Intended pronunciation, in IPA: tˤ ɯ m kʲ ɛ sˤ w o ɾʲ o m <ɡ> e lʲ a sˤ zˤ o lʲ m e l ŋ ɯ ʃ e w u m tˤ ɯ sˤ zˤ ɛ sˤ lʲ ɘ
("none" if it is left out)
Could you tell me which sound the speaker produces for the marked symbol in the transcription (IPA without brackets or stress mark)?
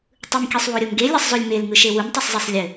ɡ